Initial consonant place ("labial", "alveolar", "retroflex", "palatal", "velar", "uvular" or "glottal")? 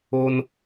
alveolar